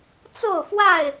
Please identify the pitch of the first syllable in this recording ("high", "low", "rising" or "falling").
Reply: falling